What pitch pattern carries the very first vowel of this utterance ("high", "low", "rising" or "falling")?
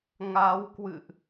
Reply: rising